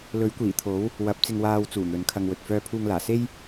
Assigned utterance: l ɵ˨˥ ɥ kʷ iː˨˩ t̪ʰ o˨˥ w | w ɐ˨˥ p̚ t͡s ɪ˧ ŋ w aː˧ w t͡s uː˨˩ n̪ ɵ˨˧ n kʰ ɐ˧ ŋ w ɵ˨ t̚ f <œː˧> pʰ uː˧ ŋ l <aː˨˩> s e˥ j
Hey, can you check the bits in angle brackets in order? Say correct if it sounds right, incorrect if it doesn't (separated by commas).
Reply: correct, correct